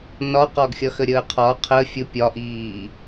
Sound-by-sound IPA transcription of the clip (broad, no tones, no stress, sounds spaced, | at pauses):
n ɒ q ɒ ɡ xʲ ʌ x ə ɾʲ əː qʰ ɒ qʰ ə fʲ ʊ pʲ ɒ ʔ iː